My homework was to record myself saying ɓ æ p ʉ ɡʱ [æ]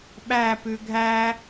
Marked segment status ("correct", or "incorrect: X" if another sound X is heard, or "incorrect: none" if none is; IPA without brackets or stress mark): correct